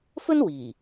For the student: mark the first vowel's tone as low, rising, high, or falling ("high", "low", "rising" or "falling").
high